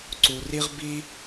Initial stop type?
click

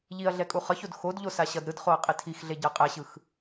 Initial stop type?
ejective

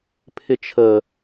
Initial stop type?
aspirated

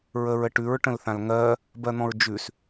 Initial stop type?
plain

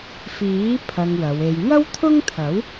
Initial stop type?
aspirated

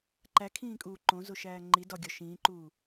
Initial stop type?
click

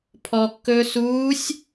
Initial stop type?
aspirated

